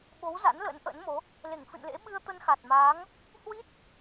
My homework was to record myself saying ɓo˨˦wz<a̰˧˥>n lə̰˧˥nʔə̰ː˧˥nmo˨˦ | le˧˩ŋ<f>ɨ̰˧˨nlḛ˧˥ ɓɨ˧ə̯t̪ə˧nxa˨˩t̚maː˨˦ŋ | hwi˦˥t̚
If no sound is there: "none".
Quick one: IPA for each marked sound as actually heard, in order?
a̰˧˥, f

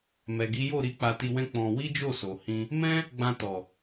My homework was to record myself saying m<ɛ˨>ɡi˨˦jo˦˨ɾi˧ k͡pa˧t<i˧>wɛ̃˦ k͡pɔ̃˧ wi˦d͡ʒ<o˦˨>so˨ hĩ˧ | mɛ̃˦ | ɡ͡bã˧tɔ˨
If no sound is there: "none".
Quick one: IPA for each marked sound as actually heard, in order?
ɛ˨, i˧, o˦˨

